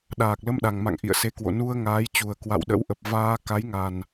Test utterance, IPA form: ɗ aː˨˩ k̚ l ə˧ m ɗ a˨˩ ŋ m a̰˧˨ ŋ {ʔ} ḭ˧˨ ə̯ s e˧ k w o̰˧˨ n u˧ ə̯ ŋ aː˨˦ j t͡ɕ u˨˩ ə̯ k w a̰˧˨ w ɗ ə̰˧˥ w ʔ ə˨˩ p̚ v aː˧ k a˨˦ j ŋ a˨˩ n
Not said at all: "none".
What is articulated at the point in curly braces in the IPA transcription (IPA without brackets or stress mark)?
ʔ